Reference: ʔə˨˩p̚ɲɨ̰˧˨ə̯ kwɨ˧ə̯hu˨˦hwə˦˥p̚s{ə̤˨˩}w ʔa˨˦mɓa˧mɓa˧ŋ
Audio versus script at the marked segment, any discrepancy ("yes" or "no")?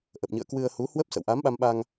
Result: yes